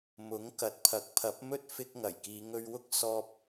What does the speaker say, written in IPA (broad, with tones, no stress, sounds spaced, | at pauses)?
m ʊ˨˥ ŋ k ɐ˨ t̚ pʰ ɐ˨˥ k̚ pʰ ɐ˨˥ p̚ m ɵ˥ t̚ f ɪ˥ k̚ ŋ ɐ˨˩ j k iː˨˧ ŋ ɵ˧ ɥ w ʊ˥ k̚ s ɔː˥ p̚